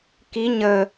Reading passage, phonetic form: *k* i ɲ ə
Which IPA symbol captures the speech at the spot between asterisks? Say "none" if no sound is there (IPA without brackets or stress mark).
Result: k